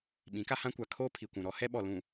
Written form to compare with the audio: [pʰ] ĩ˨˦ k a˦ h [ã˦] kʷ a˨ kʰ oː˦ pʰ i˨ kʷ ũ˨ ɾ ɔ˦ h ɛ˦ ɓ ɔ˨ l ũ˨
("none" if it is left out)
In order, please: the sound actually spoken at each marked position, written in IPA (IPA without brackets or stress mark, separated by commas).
ɓ, ã˦